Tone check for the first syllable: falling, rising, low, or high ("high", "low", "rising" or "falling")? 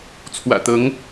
low